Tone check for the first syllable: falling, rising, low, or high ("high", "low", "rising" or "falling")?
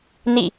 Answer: falling